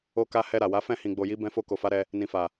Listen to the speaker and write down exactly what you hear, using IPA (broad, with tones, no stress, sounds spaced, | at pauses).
o˧ k a˧ h ɛ˧ ɾ a˨ w a˨˦ f ɛ̃˦˨ h ĩ˨ ɡ͡b o˨ j i˨˦ b ɛ̃˧ f o˧ k o˨ f a˨˦ ɾ ɛ˧ | n ĩ˨ f a˨